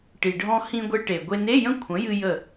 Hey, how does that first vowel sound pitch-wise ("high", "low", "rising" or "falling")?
low